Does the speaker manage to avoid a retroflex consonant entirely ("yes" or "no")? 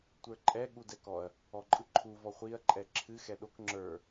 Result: yes